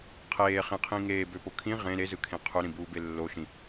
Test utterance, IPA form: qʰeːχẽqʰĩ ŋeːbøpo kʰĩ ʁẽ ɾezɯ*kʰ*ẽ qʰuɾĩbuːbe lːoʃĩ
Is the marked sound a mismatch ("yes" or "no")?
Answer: no